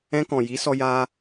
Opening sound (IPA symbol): ɛ̃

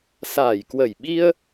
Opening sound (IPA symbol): s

